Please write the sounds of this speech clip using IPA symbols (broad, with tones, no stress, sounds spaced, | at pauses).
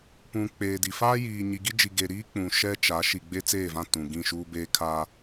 p ũ˨ k͡p eː˨ d i˨ f aː˦ j iː˨ ɲ i˨ ɡ i˦ d͡ʒ i˨ ɡ e˨ ɾ iː˦ k͡p ũ˨ ʃ ɛ˦ t͡ʃ a˨˦ ʃ i˨ ɡ͡b e˦ t͡s eː˦˨ v ã˦˨ t ũ˨ ɡ ĩ˦˨ ʃ uː˦ b e˦ kʰ a˦